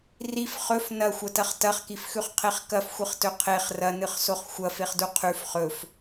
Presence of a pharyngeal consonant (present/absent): absent